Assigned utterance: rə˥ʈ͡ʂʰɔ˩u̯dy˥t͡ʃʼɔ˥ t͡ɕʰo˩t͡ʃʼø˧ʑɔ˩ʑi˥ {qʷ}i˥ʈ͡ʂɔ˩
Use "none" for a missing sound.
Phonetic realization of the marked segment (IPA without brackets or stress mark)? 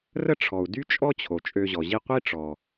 qʷ